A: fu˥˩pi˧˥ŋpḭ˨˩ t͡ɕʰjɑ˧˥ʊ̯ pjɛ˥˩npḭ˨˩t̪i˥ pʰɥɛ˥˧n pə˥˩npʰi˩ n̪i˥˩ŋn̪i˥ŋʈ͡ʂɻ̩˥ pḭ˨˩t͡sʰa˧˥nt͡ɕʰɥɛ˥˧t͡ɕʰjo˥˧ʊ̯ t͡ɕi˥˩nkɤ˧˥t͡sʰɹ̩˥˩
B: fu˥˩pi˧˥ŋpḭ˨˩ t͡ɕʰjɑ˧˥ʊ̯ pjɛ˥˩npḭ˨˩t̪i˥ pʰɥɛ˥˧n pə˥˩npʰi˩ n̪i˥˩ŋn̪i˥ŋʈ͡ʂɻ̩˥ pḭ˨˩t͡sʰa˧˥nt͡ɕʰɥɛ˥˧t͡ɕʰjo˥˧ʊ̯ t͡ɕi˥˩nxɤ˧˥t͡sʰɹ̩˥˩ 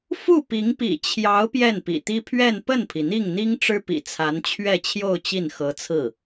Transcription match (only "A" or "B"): B